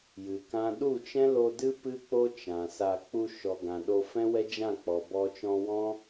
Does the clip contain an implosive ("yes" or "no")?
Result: yes